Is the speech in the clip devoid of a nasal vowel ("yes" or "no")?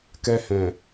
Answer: no